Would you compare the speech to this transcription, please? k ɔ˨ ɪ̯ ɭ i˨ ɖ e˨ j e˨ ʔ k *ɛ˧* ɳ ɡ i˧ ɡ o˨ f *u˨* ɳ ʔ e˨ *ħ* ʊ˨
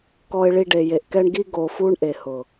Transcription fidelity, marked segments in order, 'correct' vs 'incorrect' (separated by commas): correct, incorrect, incorrect